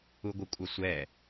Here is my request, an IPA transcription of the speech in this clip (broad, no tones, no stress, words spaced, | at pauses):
uɡʷəkʷʼɐsʷɛ